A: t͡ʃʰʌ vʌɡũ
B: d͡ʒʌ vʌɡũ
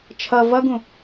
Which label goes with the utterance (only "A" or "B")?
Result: A